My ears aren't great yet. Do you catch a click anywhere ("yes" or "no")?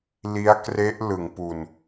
no